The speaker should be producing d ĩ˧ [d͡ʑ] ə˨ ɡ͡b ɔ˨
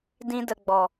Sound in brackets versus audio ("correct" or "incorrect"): incorrect